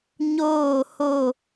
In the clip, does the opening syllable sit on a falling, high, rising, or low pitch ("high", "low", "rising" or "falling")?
falling